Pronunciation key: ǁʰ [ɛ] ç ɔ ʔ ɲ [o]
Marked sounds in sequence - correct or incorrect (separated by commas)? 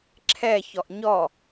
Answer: correct, incorrect